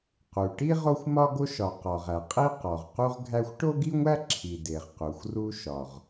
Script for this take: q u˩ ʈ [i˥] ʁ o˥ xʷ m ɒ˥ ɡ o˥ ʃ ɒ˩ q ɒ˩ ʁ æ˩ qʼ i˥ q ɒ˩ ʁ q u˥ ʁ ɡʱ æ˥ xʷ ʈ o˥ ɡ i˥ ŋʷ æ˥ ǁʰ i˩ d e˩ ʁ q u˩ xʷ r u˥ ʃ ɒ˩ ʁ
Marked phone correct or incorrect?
correct